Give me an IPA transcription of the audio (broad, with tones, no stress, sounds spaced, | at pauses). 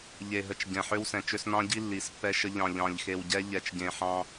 ʎ e˨ ɦ ə˨ t͡ʃ ɟ ɛ̃˨ ħ ø˦ w s ɛ̃˨ t͡ʃ ø˦ s n ɑ̃˦ ɟ i˦ lː i˨˦ s pː ɛ˦ ʃ ə˦ ʎ ɑ̃˨ ʎ ɑ̃˨ ʎ x e˨ w ɟ ɛ˦ ʎ ɛ˨ t͡ʃ ɟ ẽ˨ ħ ɑ̃˦